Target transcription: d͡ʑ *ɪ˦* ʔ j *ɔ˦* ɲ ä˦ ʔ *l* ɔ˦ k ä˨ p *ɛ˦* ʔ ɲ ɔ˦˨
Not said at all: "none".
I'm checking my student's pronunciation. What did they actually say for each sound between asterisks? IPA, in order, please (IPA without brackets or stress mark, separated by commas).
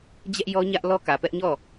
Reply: ɛ˦, ɔ˦, l, ɛ˦